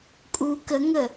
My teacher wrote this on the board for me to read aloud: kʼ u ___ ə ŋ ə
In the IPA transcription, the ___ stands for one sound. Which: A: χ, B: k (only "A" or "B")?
B